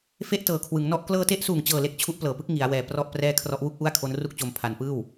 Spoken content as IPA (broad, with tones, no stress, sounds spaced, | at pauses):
f e˥˩ ʔ t ɤː˨˩ kʰ w ɯ˩˦ ŋ n ɔ˥˩ ʔ k l ɤː˧ t e˦˥ ʔ s uː˨˩ ŋ t͡ɕ ɤː˨˩ l e˦˥ k̚ t͡ɕʰ u˦˥ ʔ p l ɤː˨˩ p ɯ˦˥ k̚ ŋ i˩˦ a̯ w ɛː˨˩ p r ɔ˥˩ ʔ p r ɛː˥˩ kʰ r ɔ˦˥ ʔ w u˥˩ k̚ ʔ u˥˩ a̯ kʰ o˦˥ n r u˥˩ k̚ t͡ɕ o˧ m pʰ a˧ n p ɯː˥˩ w